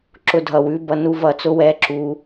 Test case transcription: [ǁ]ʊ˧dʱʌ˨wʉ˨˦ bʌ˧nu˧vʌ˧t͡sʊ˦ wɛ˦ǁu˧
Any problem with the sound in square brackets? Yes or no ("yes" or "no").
no